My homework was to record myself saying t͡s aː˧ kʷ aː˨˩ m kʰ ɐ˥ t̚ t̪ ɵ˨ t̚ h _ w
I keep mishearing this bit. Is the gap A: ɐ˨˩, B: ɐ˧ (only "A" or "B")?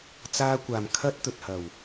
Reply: A